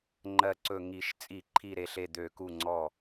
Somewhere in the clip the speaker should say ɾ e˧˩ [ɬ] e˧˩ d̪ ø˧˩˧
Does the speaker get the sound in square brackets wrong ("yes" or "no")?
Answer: no